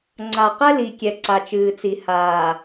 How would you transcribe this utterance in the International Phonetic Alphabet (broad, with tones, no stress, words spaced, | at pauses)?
ŋ͡ǀa˨qɛ˦ li˨kʲɛ˨ ǀa˨t͡ʃɨː˨t͡si˨ haː˨